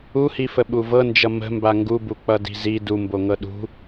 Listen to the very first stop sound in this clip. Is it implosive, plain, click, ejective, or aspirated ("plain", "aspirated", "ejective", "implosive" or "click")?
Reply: implosive